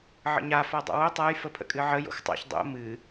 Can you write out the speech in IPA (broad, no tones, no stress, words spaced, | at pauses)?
ʕə̰ɲa fadˤa̰wo tˤaj fəpʰə̰kʼɨʕə jo̰xtˤa̰ç dˤo̰ mɨ